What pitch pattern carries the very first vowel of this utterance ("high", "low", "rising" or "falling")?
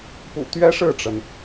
low